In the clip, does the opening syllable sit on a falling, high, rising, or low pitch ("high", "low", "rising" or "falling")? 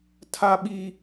high